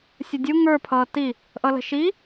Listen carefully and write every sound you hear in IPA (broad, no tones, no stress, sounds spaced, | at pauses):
sʲ ə dʲ u ŋ ə˞ pʰ ʌː t i | ʔ ʌ l ə̤ ʃ i